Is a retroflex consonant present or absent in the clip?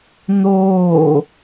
absent